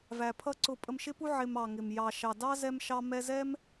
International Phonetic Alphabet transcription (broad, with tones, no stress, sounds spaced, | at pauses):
v æ˩ pʰ ʌ˥ ǀ ʊ˧ pʼ ə˧ m ʃ ɪ˥ p u˥ ʕ ɪ˧ m ɑ˩ ŋ ɪ˩ m j ɑ˩ ʃ ɑ˩ d ɑ˥ z ɛ˧ m ʃ ɑ˧ m ɛ˧ z ɛ˥ m